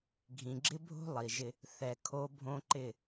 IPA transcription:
ɡʱ ĩ˨ ɡ͡ǁ ɪ˦ bʱ o̤˦ lˠ i˨ ʒ ɪ˦ | θ ɛ˨ kʰ o˦ bʱ õ˦ ǃ ɪ˦˨

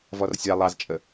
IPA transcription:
v ɔ r sʲ ɑ lˠ ɑ z t͡ʃʼ ə

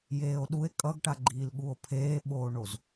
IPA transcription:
j eː o̯ ɗ u e̯ kʼ ʌ ɡ ʈ a ɡ͡ǃ iː l ɠ u o̯ pʰ eː ɓ oː ɳ o z

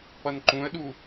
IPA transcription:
p ʌ n ǃ ũ ə̯ ɗ u

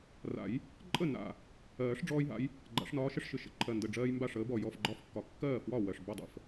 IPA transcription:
r a̰˨˩˦ j | ǃʼ ə˥˩ n a̰˨˩ | ɜː˨˩˦ ʂ ɖ͡ʐ ɔː˦ j ɦ a̰˨˥ j | ɡ͡ǃ a̰˨˩˦ ʂ n ɒː˨˥ ʃ ə˦ ʂ ʃ ɨ˨˩ ʃ ə̰˦ ǃʰ ɜ˨˩ n d ə˨˩ ɖ͡ʐ ɜː˦ j m b a˥˩ ʂ əː˨˥ b ɔ˨˩ j ɔ˥˩ f ɡ͡ǃ ɒ˥˩ f kː ɒ˨˩˦ kː ɜː˥˩ f w ɒ˥˩ w ɜ˨˩ ʂ b ɔ˥˩ dˤ ə̰˨˩ f

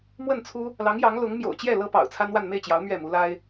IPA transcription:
m w ə˥˩ n t͡sʰ u˥ | l ɑ˧˥ ŋ j ɑ˧˥ ŋ l ʊ˧˥ ŋ m j o̰˨˩ ʊ̯ t͡ɕ j ɛ˥˩ l ɤ˥ p ɑ̰˨˩ ʊ̯ t͡sʰ a˥ n w a˥˧ n m e˥˩ ɪ̯ t͡ɕ j ɑ˧˥ ʊ̯ m ɥ ɛ˥˩ m u˧˥ l a˥ ɪ̯

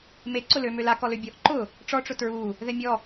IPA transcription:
m e ǀ ʊ l ø m ø l a k ɔ l ø bʲ ɔ ʔ ǃ ʊ | ʈ͡ʂ ɔ ʈ͡ʂ ʊ t ɹ u | ð ɛ mʲ ɔ

